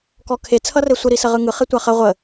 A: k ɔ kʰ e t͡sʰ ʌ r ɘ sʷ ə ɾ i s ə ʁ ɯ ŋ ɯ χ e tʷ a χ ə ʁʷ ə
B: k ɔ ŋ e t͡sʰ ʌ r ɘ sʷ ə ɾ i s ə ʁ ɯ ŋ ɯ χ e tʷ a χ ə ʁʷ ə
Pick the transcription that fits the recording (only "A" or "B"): A